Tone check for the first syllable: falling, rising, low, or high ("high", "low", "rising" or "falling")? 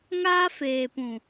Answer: high